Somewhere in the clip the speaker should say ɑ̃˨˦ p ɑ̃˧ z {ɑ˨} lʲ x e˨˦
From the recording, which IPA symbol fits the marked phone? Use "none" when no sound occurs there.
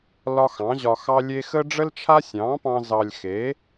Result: ɑ˨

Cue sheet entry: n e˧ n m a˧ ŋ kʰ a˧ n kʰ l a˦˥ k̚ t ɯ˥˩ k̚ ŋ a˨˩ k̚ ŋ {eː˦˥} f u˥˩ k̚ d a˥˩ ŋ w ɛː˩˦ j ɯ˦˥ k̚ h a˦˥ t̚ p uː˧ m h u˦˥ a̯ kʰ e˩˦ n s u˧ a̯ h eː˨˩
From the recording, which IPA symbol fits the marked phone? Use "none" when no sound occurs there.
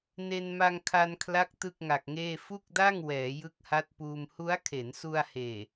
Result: eː˥˩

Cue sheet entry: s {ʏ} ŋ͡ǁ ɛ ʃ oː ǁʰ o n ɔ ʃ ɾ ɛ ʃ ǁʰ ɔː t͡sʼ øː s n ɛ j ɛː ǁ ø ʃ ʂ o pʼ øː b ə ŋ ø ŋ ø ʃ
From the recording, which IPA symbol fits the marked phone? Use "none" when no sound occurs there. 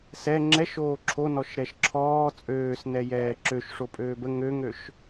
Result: ɛ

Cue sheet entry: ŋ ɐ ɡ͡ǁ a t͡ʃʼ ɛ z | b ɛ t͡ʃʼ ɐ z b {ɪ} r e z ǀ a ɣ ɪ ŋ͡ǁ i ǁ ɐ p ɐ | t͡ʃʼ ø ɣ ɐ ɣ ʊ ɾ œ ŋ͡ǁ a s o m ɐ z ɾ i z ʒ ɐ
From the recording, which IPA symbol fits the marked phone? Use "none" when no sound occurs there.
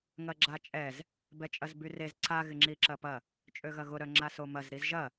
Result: y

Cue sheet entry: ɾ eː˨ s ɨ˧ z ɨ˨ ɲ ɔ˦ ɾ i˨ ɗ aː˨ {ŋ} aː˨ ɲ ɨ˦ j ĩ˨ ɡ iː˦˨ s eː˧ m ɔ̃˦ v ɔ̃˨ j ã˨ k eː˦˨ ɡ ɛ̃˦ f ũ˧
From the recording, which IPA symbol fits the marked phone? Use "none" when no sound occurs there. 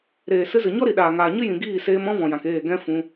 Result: ŋ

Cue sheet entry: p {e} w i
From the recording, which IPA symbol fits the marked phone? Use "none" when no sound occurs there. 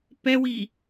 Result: ɛ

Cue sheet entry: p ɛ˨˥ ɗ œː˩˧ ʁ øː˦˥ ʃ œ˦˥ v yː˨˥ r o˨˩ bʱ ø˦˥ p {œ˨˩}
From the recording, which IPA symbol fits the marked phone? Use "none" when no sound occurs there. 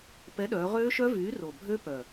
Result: œ˨˩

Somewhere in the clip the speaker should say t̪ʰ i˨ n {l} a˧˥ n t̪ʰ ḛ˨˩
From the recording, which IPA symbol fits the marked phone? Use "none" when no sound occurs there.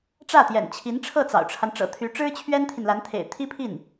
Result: l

